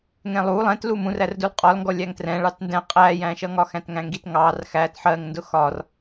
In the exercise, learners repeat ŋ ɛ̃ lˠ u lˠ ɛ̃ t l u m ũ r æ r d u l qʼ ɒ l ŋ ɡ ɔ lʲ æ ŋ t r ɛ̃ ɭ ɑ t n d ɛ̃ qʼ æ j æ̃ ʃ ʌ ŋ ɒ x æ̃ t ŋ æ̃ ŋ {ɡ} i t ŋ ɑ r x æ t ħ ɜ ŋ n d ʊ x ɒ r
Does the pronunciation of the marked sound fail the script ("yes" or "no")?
no